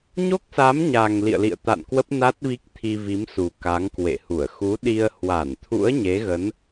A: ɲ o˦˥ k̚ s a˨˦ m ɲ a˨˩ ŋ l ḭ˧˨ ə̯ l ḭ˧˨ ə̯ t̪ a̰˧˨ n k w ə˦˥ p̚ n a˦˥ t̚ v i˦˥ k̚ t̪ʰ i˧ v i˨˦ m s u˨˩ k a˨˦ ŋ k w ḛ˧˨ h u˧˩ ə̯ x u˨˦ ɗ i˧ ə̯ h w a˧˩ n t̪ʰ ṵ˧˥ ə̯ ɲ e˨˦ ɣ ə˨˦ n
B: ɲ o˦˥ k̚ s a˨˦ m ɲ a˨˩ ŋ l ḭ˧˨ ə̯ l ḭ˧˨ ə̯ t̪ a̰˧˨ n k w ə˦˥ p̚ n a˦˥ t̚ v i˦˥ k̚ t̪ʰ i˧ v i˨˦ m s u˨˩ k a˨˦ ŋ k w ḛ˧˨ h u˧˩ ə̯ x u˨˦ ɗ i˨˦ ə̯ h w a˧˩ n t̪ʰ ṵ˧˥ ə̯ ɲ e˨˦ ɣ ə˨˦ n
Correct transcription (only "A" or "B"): A